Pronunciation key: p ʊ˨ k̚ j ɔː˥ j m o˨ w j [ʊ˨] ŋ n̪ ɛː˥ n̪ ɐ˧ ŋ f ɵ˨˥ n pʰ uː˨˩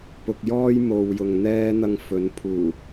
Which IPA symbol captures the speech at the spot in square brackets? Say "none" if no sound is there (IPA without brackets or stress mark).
ʊ˨